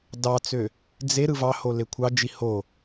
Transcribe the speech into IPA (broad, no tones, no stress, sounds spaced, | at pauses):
d ɑ t͡s ø | d͡z e ɾ ɯ v ɑ h o l e kʷʰ ɑ d͡ʒ i h o